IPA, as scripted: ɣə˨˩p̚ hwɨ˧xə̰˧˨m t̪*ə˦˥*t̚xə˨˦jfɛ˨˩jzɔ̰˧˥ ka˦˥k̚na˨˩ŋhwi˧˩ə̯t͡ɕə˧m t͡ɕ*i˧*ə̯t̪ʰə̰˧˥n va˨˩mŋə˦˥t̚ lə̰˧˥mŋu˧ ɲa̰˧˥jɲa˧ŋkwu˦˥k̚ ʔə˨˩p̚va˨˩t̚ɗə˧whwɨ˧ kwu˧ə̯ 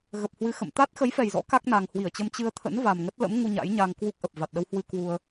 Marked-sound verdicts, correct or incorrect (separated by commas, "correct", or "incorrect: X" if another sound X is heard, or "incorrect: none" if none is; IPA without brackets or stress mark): incorrect: a˦˥, incorrect: ɨ˧